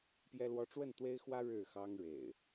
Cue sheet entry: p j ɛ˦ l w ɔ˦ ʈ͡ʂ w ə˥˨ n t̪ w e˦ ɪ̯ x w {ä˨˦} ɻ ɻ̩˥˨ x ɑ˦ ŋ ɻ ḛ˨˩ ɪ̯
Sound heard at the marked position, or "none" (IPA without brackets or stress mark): ä˦